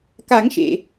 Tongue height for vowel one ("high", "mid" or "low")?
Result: low